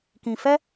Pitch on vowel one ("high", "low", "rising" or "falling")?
low